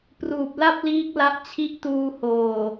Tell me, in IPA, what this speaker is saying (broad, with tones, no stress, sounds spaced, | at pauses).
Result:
p r uː˨˩ p̚ l a˥˩ p̚ l iː˦˥ k̚ l a˦˥ ʔ t͡ɕʰ i˦˥ ʔ t uː˧ h oː˨˩